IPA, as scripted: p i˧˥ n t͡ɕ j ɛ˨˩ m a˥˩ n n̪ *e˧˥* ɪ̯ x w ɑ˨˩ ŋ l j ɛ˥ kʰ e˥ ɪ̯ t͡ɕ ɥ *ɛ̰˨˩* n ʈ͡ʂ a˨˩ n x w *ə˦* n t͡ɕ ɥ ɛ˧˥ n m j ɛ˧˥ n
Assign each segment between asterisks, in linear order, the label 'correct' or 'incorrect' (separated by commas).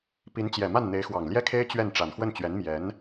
correct, incorrect, incorrect